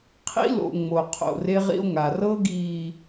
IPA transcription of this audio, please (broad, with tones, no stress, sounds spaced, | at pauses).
qʰ ḭ˦ l o̰˨ ŋ͡m o˨ qʰ o̰˨ r e˦ ʁ ḭ˦ o̯ ŋ a˨ r ɤ˦ ɡ iː˨